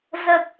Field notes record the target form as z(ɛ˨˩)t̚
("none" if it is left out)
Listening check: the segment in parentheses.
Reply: ə˨˩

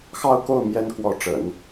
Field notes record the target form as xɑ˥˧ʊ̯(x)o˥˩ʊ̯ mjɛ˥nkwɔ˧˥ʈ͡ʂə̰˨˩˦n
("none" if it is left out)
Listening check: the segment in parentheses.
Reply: k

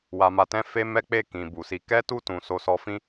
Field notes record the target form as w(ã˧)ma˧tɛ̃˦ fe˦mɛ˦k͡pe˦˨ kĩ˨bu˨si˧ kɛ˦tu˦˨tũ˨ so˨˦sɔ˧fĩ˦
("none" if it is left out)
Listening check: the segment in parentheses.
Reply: a˧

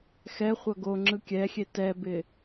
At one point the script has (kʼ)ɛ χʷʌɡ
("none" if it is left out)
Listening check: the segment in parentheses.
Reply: x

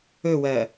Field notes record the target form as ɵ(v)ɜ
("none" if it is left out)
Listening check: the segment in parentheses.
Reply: w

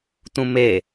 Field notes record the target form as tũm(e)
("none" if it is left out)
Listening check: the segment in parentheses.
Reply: e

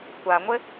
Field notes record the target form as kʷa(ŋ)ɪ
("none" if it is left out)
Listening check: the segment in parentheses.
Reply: ŋʷ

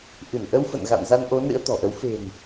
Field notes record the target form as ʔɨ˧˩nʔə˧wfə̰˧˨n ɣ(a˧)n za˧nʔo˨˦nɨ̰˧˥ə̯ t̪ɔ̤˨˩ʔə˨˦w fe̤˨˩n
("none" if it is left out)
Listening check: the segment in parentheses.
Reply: a̰˧˨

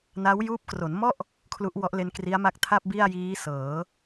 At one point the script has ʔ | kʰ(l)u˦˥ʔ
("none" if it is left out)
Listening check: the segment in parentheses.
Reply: l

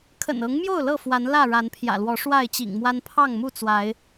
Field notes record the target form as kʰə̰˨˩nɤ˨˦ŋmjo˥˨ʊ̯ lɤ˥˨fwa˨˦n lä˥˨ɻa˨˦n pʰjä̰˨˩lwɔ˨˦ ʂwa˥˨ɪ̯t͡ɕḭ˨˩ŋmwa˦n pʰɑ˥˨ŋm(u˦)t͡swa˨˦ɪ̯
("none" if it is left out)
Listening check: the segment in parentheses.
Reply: u˥˨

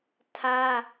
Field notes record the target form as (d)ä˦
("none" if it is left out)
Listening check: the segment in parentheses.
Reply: tʰ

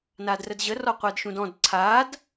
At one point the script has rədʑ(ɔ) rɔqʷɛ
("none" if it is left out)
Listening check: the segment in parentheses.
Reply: ə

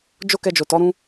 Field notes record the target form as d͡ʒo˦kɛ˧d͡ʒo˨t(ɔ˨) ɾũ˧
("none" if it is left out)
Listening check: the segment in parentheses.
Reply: ɔ˨˦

